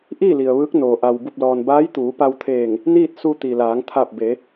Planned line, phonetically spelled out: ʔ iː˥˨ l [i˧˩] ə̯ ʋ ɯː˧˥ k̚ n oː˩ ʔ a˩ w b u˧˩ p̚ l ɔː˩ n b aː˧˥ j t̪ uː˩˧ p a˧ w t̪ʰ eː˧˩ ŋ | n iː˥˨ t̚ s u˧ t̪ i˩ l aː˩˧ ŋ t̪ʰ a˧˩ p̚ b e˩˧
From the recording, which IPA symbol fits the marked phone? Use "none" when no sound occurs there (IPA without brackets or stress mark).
i˩